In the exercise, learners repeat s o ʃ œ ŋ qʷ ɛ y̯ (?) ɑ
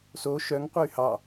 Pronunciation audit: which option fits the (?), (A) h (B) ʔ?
A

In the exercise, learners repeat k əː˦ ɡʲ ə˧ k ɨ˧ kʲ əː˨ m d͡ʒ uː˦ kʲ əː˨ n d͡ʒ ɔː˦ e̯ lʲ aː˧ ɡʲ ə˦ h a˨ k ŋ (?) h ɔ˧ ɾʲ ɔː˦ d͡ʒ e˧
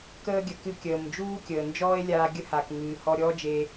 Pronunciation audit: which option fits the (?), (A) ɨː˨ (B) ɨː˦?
A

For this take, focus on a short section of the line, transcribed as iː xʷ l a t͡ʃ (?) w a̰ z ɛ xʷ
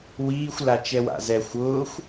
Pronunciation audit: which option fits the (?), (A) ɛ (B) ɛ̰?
A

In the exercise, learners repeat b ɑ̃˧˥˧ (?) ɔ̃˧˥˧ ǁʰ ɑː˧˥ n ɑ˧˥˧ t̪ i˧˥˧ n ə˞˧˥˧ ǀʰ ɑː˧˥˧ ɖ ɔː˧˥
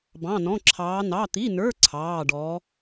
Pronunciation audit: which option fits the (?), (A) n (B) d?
A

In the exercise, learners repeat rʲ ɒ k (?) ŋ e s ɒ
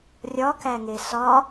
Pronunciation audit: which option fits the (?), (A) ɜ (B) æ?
B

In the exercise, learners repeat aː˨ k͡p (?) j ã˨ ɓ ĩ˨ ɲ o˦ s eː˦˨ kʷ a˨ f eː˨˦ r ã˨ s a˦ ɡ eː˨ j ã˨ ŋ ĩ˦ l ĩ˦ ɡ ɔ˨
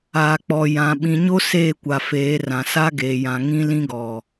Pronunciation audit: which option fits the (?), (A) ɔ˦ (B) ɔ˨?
B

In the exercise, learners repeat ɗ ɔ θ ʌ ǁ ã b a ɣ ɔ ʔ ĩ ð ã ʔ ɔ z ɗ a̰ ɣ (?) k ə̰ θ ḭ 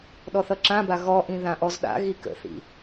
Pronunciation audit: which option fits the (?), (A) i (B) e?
A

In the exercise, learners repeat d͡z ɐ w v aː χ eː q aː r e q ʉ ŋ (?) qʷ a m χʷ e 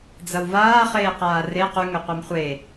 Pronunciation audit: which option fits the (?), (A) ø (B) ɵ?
B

